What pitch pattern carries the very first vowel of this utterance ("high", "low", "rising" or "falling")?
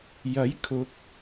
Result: rising